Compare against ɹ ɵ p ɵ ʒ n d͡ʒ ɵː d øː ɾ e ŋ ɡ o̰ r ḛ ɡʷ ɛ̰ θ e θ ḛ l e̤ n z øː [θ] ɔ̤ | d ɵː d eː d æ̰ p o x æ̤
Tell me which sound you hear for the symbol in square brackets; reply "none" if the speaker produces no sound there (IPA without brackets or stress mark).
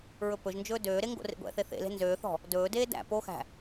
θ